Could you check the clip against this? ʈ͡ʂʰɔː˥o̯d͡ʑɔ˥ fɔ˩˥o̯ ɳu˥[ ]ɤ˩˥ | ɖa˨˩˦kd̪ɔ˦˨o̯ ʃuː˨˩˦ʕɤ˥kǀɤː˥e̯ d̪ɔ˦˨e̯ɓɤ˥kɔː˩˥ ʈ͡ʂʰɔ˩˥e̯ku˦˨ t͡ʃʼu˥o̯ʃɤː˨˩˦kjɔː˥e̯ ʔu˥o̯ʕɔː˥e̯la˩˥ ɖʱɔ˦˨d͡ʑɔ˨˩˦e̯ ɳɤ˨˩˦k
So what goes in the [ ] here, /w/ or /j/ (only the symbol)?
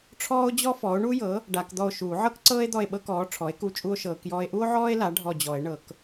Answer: j